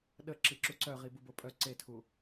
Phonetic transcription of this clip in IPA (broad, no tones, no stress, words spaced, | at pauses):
ɗə ǁiǁuǀœʁi bubopʼœ ǀetʰu